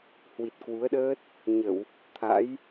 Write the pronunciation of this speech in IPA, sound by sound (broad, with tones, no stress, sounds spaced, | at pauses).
h w i˨˩ t̚ k w u˨˦ ə̯ ɗ əː˦˥ t̚ | ɲ ə˧˩˨ w | t̪ʰ a̰˧˥ j